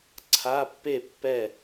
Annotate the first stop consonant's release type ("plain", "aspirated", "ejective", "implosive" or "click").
click